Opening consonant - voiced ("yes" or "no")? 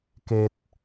no